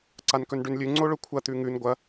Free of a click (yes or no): no